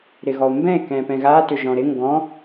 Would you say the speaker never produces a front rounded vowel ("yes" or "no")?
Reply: no